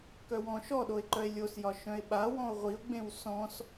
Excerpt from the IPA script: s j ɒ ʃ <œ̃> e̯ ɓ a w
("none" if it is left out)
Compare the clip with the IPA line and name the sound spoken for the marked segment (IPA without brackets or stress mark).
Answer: œ̃